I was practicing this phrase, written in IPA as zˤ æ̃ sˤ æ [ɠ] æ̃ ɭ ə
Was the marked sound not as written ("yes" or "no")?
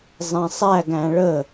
yes